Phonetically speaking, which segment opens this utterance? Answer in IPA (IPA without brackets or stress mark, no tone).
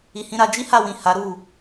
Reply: i